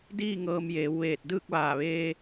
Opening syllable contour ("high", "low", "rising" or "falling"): falling